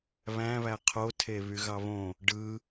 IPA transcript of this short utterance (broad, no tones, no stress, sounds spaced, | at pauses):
β æ̃ β æ qʰ o tʰ e β y ɣ ɑ β õ | ɖ ɯ